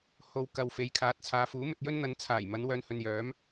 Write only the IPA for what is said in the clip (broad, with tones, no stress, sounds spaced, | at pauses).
h o˨ w k ɐ˨ w f e˨˧ j kʰ aː˨˥ t̚ t͡sʰ aː˨˧ f uː˨˥ m ɵ˧ t̚ j ɵ˥ n n̪ ɐ˨˧ n t͡sʰ aː˨˩ j m ɐ˨˧ n w œː˧ n h ɵ˨ n j œː˨˥ m